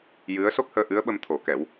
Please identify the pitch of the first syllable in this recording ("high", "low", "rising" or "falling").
rising